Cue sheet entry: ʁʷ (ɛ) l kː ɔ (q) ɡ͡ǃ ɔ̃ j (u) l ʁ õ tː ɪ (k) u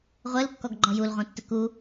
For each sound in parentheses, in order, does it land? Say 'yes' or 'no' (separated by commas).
yes, no, yes, yes